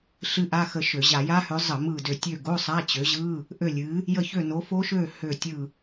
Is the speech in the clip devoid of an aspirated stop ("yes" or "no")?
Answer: yes